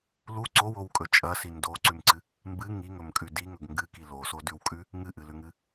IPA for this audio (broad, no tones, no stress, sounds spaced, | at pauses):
l u ǀ o w o w kʼ ɵ t͡ʃʼ ɐ s i n d o ǀ ʉ m ǀ ɨ | m b ɨ ŋ i ŋ ɵ m kʼ ʉ d i ŋ ɵ ɡ ŋ ɡ ɨ k i l o s o d ʉ w kʼ ʉ | ŋ ɨ ʔ ɨ l ʉ ŋ ɨ